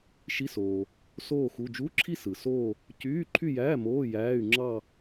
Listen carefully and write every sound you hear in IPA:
ʃ i˧˥˧ s oː˩ | s oː˥˧ x u˧˥˧ d͡ʒ u˧˥˧ ǁʰ i˥˧ s ɯ˩ s oː˥˧ | c yː˧˥˧ ǃʰ y˥˧ j æː˧˥˧ m oː˧˥˧ j æː˧˥˧ y̯ ŋ͡ǁ ɑ˥˧

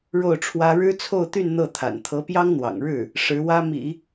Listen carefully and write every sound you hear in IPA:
ɻ o˥˩ ʊ̯ ʈ͡ʂʰ w ä˥ ɻ ɻ̩˥ t͡sʰ o˥˧ ʊ̯ t̪ y˥˧ n n̪ ɤ˥˩ t̪ʰ a̰˨˩ n t̪ʰ ɤ˧˥ p j ɑ˥ ŋ n̪ w ɑ̰˨˩ ŋ ɻ ɻ̩˥˩ | ʂ ɻ̩˧˥ w ä˥ m ḭ˨˩˦

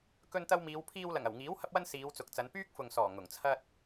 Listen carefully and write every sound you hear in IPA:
k ɵ˧ n t̪ ɐ˧ w m iː˨˧ w pʰ iː˧ w l ɐ˨˩ ŋ ɐ˨˩ w ŋ iː˨˥ w h ɐ˥ p̚ w ɐ˥ n s iː˨˧ w t͡s ʊ˨ k̚ t͡s ɐ˨˧ n p yː˥ k̚ f ʊ˨ ŋ s ɔː˨˩ ŋ ʊ˨˩ ŋ t͡sʰ ɐ˥ t̚

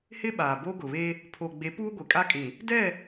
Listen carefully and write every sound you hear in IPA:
h ɪ˦ ɓ aː˨ b o˦ ɡ ʊ˨ β e˦ | pʰ o˨ ɡ͡b e˨˦ p uː˦ ɡʷ e˨ kʼ a˦ kʼ ĩ˨ | d ɛ˦˨

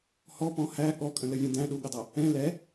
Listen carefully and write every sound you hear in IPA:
h ɔ p ɔ̃ h æ ɠ ɔ kʼ ə̃ l ə vʲ ə̃ d æ̃ ɗ u ɠ ə dˤ ɜ | ɛ̃ l ɛ

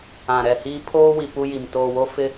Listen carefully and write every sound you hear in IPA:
ã˨ ɾ ɛ˨ h iː˦ pʰ oː˦ w i˨ p u˦ j i˨ m t oː˨ w o˦ f ɪ˦

